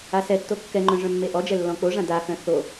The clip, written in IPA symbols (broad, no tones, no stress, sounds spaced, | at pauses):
a s ɛ tː o kː ɛ ŋ͡ǃ œ̃ ʐ œ̃ mː e ʔ ɔ d͡ʒ ɛ lː ɔ̃ k͡p o ʐ ã d a x œ̃ θ o